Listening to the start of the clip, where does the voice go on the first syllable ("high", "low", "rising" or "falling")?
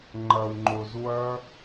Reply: low